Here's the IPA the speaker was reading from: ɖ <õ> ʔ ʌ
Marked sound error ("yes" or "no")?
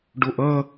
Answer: yes